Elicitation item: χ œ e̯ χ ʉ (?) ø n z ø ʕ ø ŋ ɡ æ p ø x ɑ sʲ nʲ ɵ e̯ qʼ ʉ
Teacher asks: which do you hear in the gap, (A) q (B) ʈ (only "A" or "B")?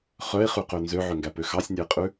A